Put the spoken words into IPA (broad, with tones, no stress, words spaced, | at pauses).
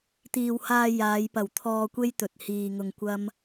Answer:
t̪iː˨whaː˧ jaː˨˧jpɐ˨˩w t̪ʰɔː˧kʷe˥jt̪ɵ˨t̚ hiː˧ŋʊ˧ŋkʷɐ˥m